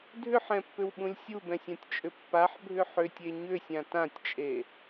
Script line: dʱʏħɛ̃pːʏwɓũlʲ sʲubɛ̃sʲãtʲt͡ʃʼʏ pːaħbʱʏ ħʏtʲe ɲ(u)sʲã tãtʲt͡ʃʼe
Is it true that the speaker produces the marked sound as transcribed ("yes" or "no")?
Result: no